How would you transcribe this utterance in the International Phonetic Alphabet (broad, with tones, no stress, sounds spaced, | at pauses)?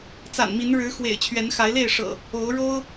t͡s a̰˨˩ n m i˨˦ n ɻ ɻ̩˨˦ x w ḛ˨˩ ɪ̯ t͡ɕʰ ɥ ɛ˨˦ n x a˨˦ ɪ̯ l e˥˨ ɪ̯ ʂ ɤ̰˨˩ | o˨˦ ʊ̯ ɻ o˦ ʊ̯